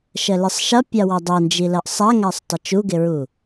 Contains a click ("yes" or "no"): no